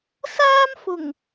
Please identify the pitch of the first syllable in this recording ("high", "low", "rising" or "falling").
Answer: high